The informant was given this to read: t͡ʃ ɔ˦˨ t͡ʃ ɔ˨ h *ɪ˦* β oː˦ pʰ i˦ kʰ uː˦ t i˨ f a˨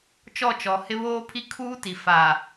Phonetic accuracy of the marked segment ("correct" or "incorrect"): correct